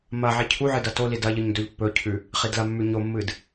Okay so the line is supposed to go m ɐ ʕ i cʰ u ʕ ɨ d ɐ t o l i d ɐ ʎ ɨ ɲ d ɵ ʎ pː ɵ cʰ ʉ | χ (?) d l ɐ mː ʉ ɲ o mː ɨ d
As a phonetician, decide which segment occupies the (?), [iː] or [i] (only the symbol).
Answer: i